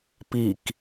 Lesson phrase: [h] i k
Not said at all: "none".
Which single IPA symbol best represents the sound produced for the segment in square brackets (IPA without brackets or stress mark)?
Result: p